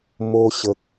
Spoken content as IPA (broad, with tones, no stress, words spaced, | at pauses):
mo˧ɕə˨k̚